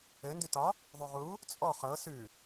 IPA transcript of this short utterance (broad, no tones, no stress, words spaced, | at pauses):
ɘ ndʉtɒ | ðˤʉʁu | t͡sʼɔ χɤ sʉ